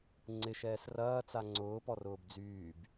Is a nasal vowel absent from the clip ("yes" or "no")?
yes